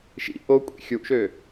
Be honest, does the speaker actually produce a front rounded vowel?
yes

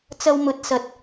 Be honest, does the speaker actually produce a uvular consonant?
no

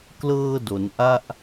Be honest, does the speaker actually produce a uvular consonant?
no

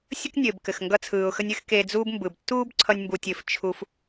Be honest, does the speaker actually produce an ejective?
no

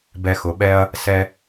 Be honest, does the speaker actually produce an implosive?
yes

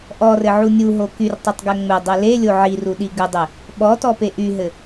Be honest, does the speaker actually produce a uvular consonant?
no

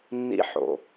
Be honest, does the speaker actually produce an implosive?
no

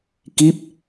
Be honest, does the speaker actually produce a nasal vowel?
no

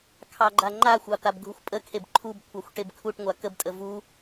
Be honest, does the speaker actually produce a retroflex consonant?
yes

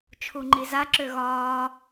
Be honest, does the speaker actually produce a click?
yes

